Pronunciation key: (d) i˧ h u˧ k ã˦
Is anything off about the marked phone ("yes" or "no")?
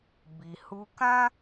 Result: yes